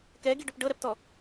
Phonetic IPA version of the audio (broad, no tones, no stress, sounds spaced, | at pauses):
k ɛ ɡ i ɖ o p ɖ ɤ ɾ ɛ p t ɔ